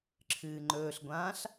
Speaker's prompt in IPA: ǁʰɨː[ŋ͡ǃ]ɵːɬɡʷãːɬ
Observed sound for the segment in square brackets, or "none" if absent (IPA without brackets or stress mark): ŋ͡ǃ